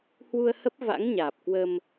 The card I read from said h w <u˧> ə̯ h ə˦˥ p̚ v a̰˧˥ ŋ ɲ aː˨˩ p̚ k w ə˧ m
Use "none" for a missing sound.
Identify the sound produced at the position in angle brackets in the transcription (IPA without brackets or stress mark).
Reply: u˧